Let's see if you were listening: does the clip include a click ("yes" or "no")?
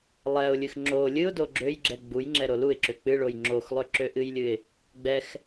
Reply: yes